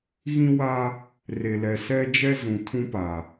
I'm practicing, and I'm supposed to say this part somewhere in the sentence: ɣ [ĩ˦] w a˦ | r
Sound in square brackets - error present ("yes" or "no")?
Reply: no